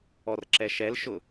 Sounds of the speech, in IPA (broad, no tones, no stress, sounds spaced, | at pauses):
ɔ r ǁ ɛ ʃ ɛ l ʃ ʊ